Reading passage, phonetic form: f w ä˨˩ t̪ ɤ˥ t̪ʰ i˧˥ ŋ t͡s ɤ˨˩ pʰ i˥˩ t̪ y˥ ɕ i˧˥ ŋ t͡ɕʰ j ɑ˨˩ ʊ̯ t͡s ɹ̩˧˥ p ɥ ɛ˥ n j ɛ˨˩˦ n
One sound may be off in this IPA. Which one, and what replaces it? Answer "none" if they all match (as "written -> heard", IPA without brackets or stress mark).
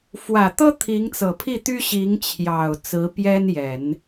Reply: ɥ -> j